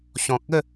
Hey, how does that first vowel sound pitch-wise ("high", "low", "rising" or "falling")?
low